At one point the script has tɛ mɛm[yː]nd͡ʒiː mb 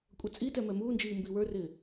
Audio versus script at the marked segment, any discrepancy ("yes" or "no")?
yes